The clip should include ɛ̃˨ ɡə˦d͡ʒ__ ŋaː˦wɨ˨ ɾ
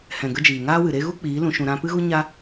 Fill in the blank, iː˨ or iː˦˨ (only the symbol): iː˨